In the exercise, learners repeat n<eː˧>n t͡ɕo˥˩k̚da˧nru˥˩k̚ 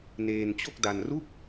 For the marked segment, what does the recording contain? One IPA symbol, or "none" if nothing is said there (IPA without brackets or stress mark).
eː˧